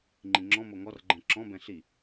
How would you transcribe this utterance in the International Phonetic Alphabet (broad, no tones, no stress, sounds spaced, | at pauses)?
ŋ͡ǃ ĩ ŋ͡ǁ ɔ̃ m o ŋ ɔ r ɡ͡ǃ ɛ̃ ǁ ɔ̃ b ɛ̃ ɬ i